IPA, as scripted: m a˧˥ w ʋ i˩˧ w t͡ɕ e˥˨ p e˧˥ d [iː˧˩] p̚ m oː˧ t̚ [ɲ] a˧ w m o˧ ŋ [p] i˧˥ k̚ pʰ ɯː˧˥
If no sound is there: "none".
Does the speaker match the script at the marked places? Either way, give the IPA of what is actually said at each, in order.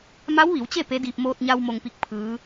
iː˧, ɲ, p

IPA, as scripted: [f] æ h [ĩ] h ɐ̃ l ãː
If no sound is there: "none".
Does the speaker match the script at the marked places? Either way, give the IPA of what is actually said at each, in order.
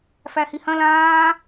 f, i

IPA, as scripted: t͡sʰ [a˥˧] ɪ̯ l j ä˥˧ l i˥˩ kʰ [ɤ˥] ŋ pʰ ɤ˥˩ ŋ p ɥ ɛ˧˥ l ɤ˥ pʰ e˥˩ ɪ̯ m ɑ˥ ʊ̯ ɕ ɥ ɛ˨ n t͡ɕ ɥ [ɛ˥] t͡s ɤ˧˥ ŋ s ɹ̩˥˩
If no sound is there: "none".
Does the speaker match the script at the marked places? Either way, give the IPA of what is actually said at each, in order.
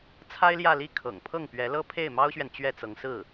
a˥, ɤ̰˨˩, ɛ˥˩

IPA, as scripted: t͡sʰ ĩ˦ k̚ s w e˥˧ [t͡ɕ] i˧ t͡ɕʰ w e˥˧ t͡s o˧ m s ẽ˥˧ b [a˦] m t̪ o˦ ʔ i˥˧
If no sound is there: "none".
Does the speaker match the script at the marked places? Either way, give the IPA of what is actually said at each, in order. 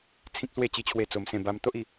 t͡ɕ, a˦

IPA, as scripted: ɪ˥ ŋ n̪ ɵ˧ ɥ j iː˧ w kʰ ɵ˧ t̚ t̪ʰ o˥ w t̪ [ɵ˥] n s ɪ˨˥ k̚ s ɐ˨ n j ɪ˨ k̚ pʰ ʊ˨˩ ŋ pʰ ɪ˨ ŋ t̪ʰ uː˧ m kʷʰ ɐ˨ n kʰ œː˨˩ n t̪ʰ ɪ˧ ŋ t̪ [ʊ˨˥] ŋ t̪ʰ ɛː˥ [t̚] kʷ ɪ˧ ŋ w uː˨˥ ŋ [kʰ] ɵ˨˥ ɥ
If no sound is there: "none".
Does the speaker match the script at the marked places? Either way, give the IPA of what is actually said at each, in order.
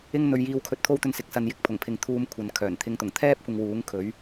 ɵ˧, ʊ˨˩, p̚, kʰ

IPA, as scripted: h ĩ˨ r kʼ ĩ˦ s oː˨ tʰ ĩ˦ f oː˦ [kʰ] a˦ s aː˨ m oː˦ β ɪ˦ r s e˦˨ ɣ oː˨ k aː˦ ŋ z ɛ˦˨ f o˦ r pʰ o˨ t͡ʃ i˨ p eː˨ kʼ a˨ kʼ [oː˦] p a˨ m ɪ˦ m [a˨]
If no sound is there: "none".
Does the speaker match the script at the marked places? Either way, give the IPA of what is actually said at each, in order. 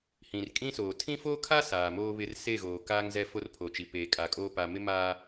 kʰ, oː˦, aː˨

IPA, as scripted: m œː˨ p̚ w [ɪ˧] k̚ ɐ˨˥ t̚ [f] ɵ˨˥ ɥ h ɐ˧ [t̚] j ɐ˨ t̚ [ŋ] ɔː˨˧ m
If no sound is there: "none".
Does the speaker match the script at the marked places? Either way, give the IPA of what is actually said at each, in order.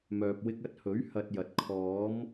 ɪ˧, h, t̚, kʰ

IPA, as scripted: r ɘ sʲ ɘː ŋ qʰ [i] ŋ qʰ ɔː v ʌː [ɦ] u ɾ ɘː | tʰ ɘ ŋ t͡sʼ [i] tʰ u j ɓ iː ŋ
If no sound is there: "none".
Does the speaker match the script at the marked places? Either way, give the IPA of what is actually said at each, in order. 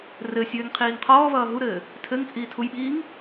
iː, ɦ, iː

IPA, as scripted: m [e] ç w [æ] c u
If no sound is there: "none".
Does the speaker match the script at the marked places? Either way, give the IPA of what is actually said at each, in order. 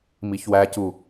i, æ

